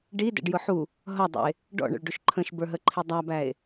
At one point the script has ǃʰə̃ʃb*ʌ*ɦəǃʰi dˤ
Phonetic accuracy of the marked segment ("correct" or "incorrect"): incorrect